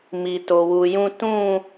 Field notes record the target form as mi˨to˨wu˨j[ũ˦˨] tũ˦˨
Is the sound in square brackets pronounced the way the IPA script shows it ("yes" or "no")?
yes